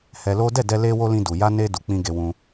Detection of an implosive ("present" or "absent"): absent